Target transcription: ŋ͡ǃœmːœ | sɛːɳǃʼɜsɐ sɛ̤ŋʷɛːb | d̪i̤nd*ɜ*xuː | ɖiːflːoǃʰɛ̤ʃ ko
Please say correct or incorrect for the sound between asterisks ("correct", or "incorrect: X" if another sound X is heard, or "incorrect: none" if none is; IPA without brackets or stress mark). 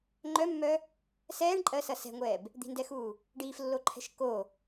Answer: incorrect: ɛ